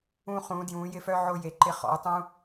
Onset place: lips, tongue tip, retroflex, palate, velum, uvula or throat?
uvula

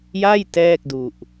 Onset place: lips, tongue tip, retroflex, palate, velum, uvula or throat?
palate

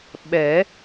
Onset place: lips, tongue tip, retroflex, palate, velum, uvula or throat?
lips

